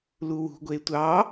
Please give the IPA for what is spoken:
l u w ṳ ɡʷ e tʷ ɑ

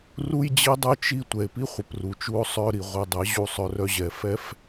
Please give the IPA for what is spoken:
r u˦ j d͡ʑ i˦ dˤ œ˦ t͡ʃ i˦ tʷ ɛ˨ e̯ p i˦ χʷ ə˨ p r u˨ t͡ʃ u˧ o̯ sˤ œ˧ ɾ i˨ ʁʷ ɛ˧ dˤ ɛ˨˦ ʑ u˦˨ sˤ œ˧ r œ˦ ʑ ɛ˨ f ɛ˦ f

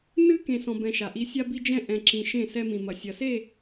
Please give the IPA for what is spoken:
n ɨ˦ k ẽ˨ s ɔ̃˨ b ɛ̃˨ ʃ a˨ ʔ i˦ sʲ a˦ b i˦ d͡ʒ ɛ̃˦ ʔ ɛ̃˨ ǁ ĩ˨ ʃ ẽ˦˨ s ɛ˦ m ĩ˨ m ɐ˨ sʲ ɐ˨ s e˦˨

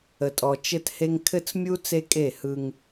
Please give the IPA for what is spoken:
ə˨ tʼ ɔ˨ t͡ʃ ɘ˦ t h e˦ ŋ kʰ ɘ˦ t͡s mʲ u˦ t͡s e˦ kʼ e˦˨ h ɯ˦ ŋ

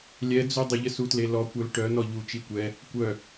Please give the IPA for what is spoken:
lʲ ɛ d͡z u dˤ ə ʎ ə s u t l e l ɔ kʷ œ l ʈ œ n ɔ ʎ u t͡ʃ i kʷ ɛ | kʷ œ

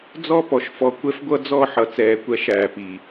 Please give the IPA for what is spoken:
d͡z ɔ˦˨ p ɔ˨ ʃ f ɔ˨ kʷ ɛ˦ f ɡʷ ʌ˦ d͡z ɔ˦˨ ħ ʌ˨ t͡s ɛː˨ kʷ æ˦ ʃ æː˨ p iː˨

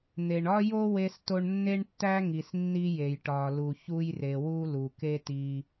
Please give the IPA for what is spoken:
n̪ e˩ ɳ ɒ˥ j o˥ w e˧ s t o˧ ɳ nː e˥ ɳ tː æ˥ ŋ i˩ s nː i˧ j e˩ j ʈ ɒ˩ l u˩ ç u˧ j r e˩ w u˧ l u˩ k e˥ t i˧

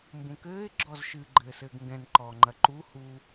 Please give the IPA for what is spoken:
m b ũ k ɘː ɪ̯ ɡ͡ǁ ɔ z ʃ ɨ ɡ͡ǃ ɘː s ɘː ɡ ŋ ɡ ɛ̃ n ǃ ɔː ŋ͡ǃ ɐ ǃ u h u

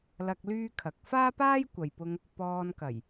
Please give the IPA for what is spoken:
l ɐ˧ k̚ l yː˥ kʰ ɐ˨˥ k̚ f aː˥ p aː˥ j kʷ ɐ˨ j p ʊ˧ ŋ | p ɔː˧ n k ɐ˨˩ j

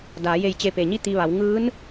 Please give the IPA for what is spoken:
d aː˩˧ j e˧˩ j t͡ɕ e˧˩ p e˩ ɲ i˥˨ t̪ i˧ ʋ a˩˧ w ŋ ɯː˧˥ n

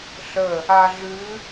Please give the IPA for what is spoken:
ɬ ə | a ɮ ʉ

